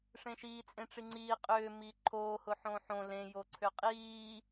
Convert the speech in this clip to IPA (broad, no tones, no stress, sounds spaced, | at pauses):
ʂ ẽ ʃ iː t͡sʼ ẽ ʈ͡ʂ i ŋ͡ǀ iː qʼ ʏː m iː ǃʰ oː h ʊ ħ õː ħ õ l ẽ j o ǀʰ ʏ qʼ iː